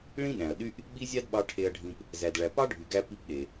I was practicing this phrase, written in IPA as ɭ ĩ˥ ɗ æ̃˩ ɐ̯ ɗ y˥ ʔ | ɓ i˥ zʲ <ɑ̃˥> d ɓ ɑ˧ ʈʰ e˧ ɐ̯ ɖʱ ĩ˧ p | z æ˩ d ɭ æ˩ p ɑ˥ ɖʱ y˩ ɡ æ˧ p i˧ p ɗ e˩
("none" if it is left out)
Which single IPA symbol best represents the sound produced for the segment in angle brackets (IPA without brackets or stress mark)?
ɑ˥